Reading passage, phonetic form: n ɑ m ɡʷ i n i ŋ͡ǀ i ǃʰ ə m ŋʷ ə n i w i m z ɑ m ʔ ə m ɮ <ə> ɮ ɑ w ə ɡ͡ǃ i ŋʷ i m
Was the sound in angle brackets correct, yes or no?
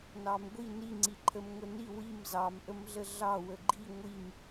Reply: yes